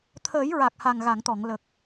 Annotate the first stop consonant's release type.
aspirated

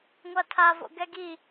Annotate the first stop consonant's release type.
aspirated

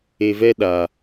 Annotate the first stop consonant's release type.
implosive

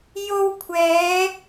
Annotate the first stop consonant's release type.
aspirated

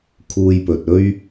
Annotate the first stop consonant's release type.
aspirated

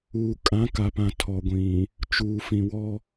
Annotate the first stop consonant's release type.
ejective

